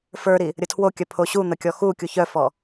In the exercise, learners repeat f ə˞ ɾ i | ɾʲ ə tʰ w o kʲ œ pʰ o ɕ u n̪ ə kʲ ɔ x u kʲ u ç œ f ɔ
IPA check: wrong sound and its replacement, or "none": none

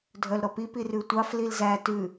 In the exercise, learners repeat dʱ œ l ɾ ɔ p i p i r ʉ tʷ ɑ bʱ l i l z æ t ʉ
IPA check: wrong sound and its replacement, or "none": bʱ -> f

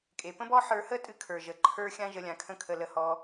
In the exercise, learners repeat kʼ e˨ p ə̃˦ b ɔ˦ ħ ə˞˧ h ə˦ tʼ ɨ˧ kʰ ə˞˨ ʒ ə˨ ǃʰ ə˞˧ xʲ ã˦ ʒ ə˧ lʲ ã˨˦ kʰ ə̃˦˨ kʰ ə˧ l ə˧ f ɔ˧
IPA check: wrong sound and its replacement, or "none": f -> h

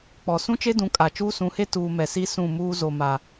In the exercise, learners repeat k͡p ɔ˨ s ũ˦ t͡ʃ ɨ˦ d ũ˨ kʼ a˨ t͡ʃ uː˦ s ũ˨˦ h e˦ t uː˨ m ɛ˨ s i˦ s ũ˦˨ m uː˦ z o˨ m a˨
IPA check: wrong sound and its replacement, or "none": ɨ˦ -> e˦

